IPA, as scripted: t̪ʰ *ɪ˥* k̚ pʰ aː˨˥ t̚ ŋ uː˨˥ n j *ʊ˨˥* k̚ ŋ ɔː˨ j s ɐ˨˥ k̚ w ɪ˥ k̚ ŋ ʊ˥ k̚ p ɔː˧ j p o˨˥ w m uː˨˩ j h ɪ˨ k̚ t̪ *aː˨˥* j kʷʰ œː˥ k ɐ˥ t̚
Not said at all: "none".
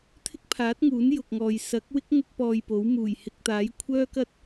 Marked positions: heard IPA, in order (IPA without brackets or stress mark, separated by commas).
ɪ˥, ʊ˨, aː˨˥